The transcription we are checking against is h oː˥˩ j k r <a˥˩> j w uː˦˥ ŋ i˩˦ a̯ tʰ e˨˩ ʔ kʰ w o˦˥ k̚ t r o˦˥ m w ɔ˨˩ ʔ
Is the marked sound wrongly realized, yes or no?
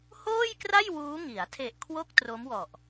no